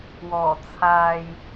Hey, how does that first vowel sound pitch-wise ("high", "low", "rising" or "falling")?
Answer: low